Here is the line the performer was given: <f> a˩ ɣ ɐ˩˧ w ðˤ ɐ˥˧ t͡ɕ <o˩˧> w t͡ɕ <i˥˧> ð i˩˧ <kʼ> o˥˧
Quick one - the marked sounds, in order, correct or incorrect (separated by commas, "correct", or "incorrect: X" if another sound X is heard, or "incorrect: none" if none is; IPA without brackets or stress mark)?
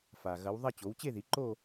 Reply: correct, correct, incorrect: e˥˧, incorrect: ǃ